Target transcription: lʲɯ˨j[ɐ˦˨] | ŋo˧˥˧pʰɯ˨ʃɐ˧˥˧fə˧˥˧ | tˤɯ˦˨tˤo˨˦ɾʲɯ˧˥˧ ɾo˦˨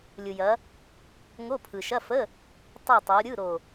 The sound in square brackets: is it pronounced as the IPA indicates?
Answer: no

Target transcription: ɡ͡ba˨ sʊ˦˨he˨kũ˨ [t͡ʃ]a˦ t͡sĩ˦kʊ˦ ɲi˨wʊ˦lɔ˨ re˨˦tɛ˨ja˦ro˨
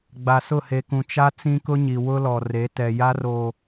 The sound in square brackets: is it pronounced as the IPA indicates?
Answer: yes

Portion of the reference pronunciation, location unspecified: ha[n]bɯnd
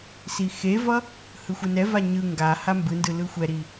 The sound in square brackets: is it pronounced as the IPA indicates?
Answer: no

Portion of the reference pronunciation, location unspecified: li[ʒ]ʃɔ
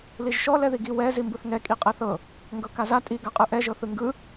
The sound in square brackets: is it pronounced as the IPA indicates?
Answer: yes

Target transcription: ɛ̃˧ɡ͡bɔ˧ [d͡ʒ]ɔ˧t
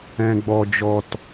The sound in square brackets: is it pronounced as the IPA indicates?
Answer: yes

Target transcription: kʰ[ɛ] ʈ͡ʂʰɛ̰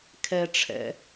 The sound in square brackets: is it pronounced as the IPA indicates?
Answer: yes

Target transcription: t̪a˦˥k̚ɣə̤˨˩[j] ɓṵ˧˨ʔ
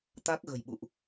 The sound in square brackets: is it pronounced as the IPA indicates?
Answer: yes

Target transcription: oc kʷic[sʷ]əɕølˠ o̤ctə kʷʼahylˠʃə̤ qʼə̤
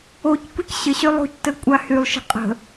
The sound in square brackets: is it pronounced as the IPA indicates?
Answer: no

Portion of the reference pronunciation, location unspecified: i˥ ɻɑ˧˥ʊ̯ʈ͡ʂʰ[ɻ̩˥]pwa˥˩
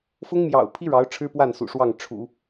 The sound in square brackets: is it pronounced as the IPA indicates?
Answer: yes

